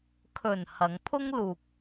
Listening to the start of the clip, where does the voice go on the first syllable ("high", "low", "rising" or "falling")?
low